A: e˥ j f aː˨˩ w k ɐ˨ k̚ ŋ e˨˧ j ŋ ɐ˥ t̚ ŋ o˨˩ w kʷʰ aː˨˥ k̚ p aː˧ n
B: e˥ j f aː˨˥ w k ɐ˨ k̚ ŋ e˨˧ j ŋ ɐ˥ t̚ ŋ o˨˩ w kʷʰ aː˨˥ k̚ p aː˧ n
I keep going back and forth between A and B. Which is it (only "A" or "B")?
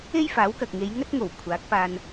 B